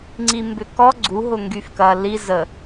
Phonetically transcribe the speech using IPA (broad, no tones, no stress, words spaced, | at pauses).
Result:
ŋ͡ǀimbʏkɔ ɡ͡ǀu ɦʊŋɡyfkɐ li zə